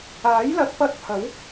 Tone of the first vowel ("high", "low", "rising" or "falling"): rising